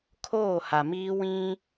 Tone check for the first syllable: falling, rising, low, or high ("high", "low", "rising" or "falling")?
falling